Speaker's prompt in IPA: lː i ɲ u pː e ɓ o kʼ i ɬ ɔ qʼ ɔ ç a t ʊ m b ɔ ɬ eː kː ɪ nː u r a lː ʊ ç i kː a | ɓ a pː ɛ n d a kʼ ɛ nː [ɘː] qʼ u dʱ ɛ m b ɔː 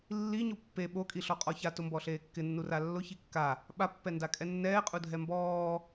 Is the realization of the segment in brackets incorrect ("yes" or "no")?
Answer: yes